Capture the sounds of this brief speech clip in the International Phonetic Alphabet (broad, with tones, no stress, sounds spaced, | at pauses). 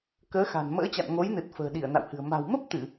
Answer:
k əː˨˦ x a̤˨˩ n m ə̰ː˧˥ t͡ɕ a̰˧˨ n ŋ o˨˦ j n ɨ˨˩ t̚ f ə̤ː˨˩ ɗ i˧˩ ə̯ n a̰˧˨ w h ɨ̤˨˩ ə̯ m a̤˨˩ w m ə˦˥ p̚ t̪ ɨ˧˩˨